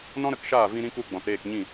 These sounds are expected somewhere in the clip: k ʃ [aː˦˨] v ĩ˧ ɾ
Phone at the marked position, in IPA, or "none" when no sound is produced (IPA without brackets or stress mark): aː˦˨